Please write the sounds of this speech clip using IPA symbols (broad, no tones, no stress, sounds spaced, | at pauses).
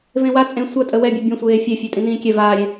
v ẽ w a t͡sʼ ẽ sʷ a tʼ ə w ɛ bʲ ɛ bʲ ɔ̃ sʷ eː fʲ ɛ fʲ ɛ tʼ ĩ n ĩː kʲ ɛ v aː ɾʲ ẽ